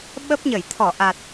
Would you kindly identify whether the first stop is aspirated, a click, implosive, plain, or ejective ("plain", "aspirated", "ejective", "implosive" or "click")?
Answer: implosive